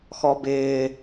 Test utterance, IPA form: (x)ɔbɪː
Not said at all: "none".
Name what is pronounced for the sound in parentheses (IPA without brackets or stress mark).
x